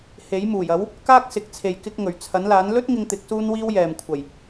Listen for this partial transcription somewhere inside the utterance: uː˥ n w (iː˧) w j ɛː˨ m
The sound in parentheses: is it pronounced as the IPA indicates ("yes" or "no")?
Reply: no